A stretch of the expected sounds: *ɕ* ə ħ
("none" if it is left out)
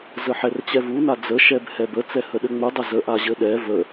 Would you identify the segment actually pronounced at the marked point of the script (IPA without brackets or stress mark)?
z